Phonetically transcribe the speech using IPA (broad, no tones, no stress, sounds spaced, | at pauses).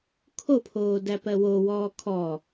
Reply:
kʰ o pʰ oː d æ p ɜ w o w ɔː kʰ ɔ